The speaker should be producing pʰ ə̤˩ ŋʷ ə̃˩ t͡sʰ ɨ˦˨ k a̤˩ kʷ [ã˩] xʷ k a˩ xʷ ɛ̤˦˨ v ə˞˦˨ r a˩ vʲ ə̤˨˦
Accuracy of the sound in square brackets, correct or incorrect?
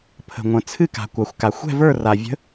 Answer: incorrect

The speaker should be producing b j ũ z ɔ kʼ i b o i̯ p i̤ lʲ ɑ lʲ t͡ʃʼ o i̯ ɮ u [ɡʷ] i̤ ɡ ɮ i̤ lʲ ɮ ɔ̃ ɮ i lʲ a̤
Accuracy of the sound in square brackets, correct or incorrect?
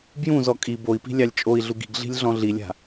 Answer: incorrect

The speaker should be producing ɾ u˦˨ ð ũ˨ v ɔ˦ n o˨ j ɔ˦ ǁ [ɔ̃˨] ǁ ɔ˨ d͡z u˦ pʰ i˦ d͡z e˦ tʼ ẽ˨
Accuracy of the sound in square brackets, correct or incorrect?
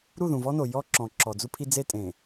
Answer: correct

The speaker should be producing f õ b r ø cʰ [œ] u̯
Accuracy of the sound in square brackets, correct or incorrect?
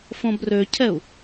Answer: incorrect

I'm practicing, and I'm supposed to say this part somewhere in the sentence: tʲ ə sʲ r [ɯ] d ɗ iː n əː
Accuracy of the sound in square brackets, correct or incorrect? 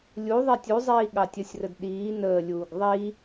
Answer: incorrect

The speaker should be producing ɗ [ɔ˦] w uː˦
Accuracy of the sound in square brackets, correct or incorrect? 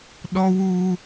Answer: correct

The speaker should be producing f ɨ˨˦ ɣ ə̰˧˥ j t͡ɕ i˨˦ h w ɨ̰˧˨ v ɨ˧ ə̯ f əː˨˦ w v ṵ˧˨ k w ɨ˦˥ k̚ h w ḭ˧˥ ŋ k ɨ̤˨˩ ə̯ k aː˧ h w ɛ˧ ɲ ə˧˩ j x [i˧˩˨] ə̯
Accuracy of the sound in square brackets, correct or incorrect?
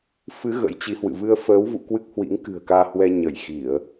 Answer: correct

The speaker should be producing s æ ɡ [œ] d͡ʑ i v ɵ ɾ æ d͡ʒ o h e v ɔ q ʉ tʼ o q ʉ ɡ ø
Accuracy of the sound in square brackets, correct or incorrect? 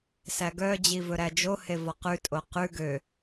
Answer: correct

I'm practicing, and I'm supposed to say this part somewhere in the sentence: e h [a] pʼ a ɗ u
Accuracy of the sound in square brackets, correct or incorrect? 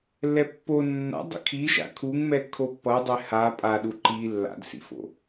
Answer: correct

